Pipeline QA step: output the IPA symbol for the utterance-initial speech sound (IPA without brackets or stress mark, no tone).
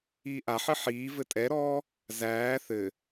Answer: iː